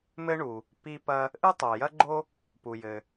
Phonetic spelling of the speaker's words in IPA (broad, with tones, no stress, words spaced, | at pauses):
mɘ˥ɳu˩ | pi˥pɐ˥ | ʔɨ˥tˤo˩jɐ˥ɡ͡ǃo˥ | pu˩jɘ˩